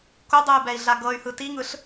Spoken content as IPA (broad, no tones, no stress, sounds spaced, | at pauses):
k u dˤ ɯ y̯ b ɛ i̯ ɮ a ɡ ɤ y̯ h ɯ t i ŋ ɯ ɬ